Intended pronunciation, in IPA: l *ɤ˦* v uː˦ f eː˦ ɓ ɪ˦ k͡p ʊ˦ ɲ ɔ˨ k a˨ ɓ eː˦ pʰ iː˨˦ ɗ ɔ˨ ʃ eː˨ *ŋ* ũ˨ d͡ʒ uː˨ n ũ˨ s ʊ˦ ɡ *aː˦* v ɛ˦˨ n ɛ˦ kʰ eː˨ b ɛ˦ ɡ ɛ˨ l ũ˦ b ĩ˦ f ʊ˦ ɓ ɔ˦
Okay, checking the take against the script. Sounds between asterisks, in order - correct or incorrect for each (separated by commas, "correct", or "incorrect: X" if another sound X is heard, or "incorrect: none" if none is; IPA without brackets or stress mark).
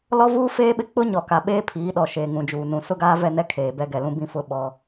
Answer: incorrect: ɔ˦, correct, correct